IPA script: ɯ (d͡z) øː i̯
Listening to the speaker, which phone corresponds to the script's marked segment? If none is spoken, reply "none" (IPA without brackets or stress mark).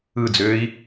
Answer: d͡z